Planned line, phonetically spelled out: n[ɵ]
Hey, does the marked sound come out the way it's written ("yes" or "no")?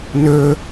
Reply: yes